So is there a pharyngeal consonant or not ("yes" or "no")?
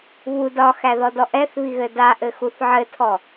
yes